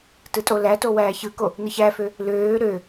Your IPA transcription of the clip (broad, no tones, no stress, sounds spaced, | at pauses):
t ɯ tʼ o l æ t o w æː ç ɯ k o | n ɯ ç æ f ø | l øː ɾ ø